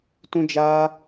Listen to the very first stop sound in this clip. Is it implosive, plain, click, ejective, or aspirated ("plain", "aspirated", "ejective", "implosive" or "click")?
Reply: plain